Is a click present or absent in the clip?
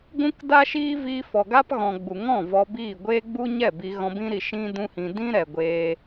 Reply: absent